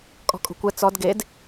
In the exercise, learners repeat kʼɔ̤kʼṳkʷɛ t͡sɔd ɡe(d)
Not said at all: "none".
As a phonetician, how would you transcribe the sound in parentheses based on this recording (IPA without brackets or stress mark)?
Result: d